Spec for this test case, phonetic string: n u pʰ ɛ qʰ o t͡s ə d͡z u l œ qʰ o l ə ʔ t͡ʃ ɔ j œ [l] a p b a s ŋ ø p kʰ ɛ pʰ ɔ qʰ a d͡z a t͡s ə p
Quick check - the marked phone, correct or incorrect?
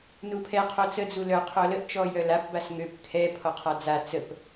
correct